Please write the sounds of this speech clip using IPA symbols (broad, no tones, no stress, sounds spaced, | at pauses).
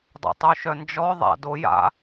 dˤ ṵ tˤ u ʃ œ n d͡ʒ ɔ ðˤ a̰ d o j a̰